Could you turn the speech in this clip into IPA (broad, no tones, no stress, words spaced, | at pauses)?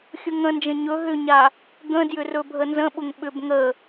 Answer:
xʲʊŋə̃nd͡ʒə̃ ɲɵ ɦʏɲa | ɡə̃djʏ rɵbʱənzə̃ɓʊŋ ɓʏb ŋə